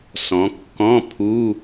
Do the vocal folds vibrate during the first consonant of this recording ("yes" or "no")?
no